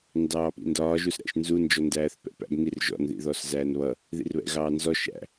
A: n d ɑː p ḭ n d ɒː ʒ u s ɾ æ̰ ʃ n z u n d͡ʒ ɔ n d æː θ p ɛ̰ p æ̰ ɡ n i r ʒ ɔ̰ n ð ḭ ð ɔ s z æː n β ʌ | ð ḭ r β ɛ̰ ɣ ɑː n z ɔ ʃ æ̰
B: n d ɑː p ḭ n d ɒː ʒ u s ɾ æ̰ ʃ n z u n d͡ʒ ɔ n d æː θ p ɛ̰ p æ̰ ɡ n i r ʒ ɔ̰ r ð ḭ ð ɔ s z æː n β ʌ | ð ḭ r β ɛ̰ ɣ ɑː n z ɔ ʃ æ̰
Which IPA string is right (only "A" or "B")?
A